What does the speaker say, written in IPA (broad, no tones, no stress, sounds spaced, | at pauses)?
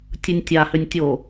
tʲ ɯ nʲ tʲ a h ʏ nʲ tʲ o